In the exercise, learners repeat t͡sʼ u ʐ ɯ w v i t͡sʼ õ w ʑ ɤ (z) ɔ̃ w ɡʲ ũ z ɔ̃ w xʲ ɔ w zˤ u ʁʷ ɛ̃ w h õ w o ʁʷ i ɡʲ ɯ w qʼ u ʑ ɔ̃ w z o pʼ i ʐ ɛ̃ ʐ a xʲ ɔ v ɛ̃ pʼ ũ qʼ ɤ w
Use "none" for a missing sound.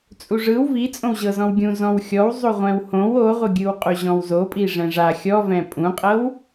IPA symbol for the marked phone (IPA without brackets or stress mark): z